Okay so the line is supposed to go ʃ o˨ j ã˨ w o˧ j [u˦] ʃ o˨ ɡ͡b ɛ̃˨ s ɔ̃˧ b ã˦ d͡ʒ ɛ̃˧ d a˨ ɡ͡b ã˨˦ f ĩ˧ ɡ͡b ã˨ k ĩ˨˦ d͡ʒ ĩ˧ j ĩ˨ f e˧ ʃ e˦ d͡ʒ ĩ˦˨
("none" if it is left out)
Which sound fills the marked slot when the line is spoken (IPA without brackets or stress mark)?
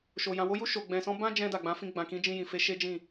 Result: u˧